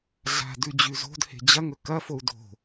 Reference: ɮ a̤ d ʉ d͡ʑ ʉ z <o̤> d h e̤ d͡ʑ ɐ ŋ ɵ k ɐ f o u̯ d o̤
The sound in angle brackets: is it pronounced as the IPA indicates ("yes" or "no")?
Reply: yes